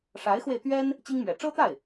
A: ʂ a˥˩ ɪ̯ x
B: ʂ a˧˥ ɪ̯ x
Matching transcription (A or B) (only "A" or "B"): B